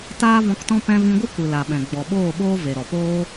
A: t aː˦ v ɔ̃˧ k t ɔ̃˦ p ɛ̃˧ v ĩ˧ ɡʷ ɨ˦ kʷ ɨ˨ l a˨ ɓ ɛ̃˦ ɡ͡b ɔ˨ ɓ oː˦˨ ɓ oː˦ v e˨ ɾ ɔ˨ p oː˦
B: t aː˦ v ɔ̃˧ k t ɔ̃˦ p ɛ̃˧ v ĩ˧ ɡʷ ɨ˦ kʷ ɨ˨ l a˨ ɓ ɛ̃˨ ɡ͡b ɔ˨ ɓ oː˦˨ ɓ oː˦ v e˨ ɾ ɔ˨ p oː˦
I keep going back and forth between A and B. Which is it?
B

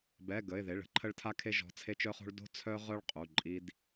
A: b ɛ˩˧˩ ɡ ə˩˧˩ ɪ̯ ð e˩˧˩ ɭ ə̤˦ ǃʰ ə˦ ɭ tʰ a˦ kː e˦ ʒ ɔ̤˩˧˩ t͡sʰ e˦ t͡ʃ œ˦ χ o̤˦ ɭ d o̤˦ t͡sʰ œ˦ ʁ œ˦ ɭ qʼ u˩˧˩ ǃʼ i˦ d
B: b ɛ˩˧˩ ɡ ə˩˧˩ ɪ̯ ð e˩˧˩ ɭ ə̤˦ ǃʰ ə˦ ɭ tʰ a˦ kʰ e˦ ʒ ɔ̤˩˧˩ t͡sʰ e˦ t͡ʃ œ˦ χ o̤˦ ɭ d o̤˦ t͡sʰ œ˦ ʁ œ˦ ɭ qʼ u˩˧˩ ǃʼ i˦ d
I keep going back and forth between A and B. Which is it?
B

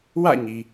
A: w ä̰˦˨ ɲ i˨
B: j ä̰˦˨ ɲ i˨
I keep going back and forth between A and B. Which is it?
A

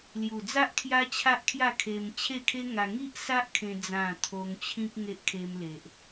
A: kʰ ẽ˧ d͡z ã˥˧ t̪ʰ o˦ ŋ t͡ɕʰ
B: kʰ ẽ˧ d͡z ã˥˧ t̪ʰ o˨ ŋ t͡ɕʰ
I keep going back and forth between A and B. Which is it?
A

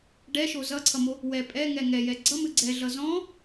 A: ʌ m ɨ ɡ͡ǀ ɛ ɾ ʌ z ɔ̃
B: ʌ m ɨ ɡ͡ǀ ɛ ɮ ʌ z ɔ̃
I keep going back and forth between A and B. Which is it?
B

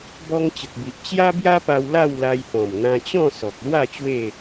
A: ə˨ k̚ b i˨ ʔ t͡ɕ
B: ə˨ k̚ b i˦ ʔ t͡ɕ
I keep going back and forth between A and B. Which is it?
A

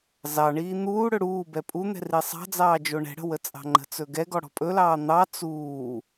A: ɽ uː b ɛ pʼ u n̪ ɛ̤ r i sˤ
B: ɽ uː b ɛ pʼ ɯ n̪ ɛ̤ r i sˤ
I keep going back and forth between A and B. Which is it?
A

